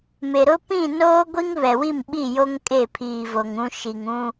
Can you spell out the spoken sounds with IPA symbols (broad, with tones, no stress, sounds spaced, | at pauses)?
m e˨ ɾ ʊ˦ p ĩ˦˨ n oː˦ ɡʷ i˦ ŋ β ɛ˨ w i˦˨ m ɓ i˦˨ j o˦ ŋ kʼ e˦˨ pʰ iː˨ v o˨ ŋ ũ˦ ʃ i˨ ŋ ũ˦